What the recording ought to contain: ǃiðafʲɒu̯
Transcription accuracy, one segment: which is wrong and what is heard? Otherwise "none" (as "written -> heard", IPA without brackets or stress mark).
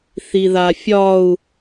ǃ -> θ